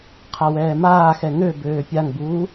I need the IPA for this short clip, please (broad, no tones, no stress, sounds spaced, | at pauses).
qʰ a w ɛː m aː x ɛ ŋ ø b øː pʲ a ŋ b uː